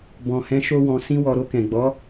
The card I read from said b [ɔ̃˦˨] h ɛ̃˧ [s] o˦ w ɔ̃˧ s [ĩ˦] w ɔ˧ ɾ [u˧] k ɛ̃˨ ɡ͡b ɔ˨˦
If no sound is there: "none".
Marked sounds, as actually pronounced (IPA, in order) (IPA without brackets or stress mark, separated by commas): ɔ̃˨, ʃ, ĩ˦, o˧